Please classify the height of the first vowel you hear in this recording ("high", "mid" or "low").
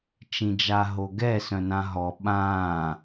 high